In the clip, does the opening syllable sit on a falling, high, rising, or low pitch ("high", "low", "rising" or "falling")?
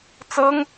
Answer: high